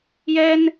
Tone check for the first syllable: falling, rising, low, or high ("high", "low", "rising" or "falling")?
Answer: high